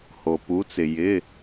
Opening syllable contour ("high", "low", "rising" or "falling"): low